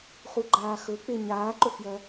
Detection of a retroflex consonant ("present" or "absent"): absent